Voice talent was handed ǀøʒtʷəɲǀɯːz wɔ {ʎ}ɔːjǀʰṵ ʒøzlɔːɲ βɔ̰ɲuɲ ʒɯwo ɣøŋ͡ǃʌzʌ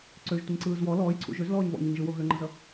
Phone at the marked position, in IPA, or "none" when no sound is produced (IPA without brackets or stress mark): l